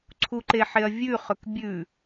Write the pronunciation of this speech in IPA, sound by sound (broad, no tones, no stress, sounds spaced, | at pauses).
ǀʰ u ǃ e ħ e ɐ̯ vʲ ʉ χ ɵ k bʲ ʉ